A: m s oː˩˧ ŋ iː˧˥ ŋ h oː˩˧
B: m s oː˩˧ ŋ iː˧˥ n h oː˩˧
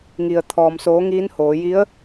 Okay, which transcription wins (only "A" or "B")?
B